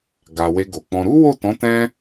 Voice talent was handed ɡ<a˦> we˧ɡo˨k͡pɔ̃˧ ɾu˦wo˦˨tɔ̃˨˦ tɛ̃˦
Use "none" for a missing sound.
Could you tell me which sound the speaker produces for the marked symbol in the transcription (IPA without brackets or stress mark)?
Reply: a˨